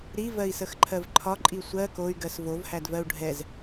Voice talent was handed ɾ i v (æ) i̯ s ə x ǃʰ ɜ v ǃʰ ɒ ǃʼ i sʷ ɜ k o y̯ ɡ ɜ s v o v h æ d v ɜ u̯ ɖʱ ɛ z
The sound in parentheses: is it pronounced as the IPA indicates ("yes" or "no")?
no